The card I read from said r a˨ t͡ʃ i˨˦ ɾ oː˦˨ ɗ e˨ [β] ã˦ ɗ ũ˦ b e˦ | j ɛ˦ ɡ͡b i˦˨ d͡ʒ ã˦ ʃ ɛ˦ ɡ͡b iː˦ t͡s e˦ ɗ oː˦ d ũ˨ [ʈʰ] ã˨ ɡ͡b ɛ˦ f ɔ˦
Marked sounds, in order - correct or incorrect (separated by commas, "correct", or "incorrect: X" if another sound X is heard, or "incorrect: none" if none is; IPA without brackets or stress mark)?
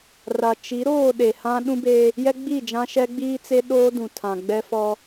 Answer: incorrect: h, incorrect: tʰ